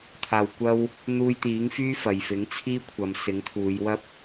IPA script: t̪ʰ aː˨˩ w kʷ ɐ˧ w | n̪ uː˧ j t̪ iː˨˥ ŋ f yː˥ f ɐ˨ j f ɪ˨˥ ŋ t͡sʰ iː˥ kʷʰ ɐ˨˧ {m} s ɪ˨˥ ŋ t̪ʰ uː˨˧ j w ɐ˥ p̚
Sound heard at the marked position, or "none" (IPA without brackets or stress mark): m